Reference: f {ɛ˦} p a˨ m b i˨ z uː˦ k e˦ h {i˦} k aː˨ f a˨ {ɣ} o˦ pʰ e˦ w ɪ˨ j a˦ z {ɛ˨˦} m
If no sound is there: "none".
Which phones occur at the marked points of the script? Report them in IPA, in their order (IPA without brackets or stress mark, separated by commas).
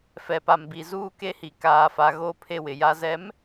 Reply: ɛ˨, i˨, ɣ, ɛ˨˦